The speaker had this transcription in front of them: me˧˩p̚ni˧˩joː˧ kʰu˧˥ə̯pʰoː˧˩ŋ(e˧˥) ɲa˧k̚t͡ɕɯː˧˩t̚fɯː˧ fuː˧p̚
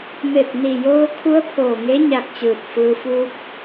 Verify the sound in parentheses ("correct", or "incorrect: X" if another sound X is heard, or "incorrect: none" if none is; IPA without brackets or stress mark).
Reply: correct